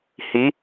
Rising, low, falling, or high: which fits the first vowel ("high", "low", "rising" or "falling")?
rising